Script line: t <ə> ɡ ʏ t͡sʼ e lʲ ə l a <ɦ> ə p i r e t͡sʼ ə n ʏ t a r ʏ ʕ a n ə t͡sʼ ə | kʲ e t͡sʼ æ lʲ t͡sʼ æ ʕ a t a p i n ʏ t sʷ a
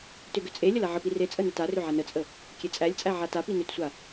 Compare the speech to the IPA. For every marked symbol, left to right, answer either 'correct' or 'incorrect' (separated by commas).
incorrect, incorrect